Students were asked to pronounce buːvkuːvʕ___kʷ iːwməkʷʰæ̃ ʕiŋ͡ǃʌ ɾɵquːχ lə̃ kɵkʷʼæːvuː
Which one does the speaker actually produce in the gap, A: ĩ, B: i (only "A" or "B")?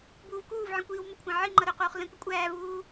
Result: A